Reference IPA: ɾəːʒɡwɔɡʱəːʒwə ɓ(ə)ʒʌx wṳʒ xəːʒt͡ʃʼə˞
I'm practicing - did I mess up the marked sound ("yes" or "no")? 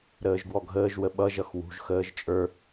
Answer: yes